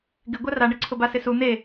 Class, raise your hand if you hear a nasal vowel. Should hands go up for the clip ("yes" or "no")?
no